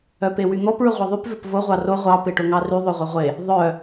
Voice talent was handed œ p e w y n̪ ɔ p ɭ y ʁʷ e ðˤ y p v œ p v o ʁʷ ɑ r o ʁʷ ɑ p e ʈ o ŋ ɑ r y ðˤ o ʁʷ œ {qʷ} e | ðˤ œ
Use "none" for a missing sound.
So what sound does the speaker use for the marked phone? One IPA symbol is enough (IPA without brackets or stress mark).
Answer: ʁʷ